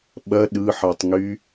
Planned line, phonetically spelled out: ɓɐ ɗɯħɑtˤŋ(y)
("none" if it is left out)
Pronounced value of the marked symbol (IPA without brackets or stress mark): y